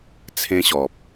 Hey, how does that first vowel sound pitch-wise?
high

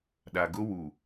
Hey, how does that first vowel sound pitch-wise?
low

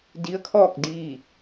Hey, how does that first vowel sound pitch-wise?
rising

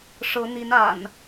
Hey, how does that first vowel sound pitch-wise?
rising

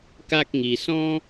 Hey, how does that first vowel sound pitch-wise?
high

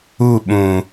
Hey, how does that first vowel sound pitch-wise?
falling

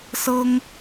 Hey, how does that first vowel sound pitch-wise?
high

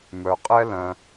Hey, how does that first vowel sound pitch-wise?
low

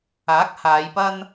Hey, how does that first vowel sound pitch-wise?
rising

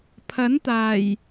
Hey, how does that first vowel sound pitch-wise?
rising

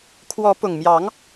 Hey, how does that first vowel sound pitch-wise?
rising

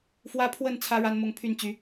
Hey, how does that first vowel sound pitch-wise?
high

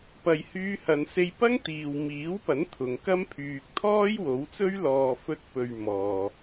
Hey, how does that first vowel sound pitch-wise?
low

